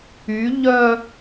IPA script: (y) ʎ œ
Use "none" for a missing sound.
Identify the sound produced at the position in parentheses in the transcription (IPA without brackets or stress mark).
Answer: y